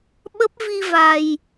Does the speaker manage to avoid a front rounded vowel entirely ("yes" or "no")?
yes